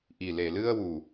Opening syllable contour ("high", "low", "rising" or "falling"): low